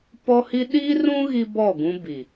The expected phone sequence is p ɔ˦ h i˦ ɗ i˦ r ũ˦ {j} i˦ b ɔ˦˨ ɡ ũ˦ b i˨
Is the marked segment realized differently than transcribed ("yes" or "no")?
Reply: yes